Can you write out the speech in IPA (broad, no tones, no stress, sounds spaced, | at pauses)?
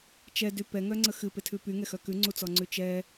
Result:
t͡ʃ ɛ d y p ɛ ŋ œ ŋ͡ǀ ə x ɨ p e tʰ ʉ p y ŋ ɛ x œ k ʉ ŋ͡ǀ u t͡s ɔ ŋ͡ǀ ʉ t͡ʃ ɛ